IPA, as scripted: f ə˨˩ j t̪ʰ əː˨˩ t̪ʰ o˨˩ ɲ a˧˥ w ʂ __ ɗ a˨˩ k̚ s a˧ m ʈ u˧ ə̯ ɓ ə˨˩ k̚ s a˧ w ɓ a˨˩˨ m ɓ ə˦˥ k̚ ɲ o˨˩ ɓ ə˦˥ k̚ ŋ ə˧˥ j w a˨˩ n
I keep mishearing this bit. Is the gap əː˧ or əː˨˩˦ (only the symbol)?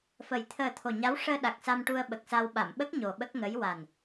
əː˧